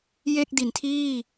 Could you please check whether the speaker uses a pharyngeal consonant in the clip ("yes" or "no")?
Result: no